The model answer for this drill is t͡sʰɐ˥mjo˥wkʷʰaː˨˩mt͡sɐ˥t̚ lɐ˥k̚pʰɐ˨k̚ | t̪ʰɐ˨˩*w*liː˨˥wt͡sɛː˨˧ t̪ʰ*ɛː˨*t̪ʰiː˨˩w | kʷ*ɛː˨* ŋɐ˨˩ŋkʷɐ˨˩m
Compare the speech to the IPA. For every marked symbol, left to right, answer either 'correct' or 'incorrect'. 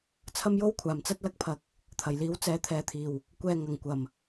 incorrect: j, correct, correct

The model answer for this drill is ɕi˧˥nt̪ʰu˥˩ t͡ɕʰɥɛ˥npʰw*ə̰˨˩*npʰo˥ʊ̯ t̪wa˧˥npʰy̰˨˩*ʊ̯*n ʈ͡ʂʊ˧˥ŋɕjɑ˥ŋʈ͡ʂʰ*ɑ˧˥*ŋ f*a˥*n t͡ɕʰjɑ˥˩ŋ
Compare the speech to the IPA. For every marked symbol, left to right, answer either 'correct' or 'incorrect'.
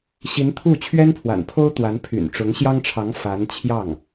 incorrect: a̰˨˩, incorrect: none, correct, incorrect: a˧˥

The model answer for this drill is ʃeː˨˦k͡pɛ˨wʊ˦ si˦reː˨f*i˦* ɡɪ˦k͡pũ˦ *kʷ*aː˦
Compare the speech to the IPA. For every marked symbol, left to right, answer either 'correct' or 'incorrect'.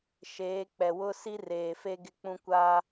incorrect: e˦, correct

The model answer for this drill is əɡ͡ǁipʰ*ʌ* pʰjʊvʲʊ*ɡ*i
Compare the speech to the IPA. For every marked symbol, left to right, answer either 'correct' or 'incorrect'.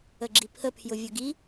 incorrect: ə, correct

